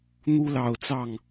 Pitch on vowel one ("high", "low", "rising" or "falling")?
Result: high